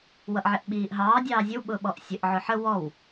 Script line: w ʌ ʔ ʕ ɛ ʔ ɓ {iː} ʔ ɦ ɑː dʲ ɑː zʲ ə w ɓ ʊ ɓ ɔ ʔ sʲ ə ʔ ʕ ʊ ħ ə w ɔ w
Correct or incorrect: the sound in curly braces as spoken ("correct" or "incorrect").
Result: correct